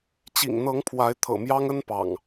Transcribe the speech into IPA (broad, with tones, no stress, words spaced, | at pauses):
t͡ɕḭ˨˩ŋn̪ɤ˨˦ŋpʰwa˨˦ɪ̯ t̪ʰɤ̰˨˩mjɑ˦ŋə˦n pɑ̰˨˩ŋ